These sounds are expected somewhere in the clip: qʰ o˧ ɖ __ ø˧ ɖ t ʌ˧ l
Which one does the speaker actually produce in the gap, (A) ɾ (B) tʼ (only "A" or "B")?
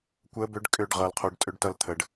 B